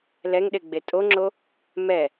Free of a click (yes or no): no